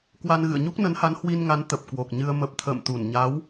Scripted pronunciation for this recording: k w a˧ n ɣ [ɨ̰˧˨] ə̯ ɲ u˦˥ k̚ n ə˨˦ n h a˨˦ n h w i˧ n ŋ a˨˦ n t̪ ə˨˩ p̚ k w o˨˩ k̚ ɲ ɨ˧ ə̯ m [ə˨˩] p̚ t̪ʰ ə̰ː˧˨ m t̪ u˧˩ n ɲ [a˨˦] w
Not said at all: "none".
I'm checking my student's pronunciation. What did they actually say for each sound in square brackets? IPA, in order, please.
ɨ̰˧˨, ə˨˩, a˨˦

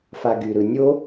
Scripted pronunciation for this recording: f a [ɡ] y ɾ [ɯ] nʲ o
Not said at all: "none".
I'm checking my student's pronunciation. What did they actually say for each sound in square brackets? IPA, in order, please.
ɡ, ɯ

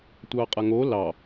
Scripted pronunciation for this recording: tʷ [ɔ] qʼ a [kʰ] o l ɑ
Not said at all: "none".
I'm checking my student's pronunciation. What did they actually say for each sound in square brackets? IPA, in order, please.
ɑ, ŋ

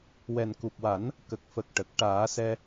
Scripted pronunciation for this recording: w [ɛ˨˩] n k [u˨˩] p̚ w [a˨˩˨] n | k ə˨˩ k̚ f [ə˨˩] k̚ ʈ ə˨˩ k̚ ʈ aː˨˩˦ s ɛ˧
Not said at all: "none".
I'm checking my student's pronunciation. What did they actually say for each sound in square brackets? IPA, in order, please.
ɛ˨˩, u˨˩, a˨˩˦, ə˨˩

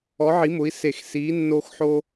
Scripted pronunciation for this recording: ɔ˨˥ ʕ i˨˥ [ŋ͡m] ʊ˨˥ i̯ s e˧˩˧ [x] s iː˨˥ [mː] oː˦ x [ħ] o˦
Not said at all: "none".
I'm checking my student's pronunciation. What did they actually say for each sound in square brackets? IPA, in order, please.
m, x, nː, ħ

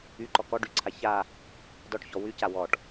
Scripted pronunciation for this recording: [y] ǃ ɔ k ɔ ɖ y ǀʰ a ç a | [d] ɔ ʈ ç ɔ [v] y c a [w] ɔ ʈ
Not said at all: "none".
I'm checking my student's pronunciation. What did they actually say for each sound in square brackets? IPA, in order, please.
y, d, w, w

